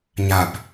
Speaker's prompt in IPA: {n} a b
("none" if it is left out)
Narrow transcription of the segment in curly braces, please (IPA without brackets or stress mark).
ɲ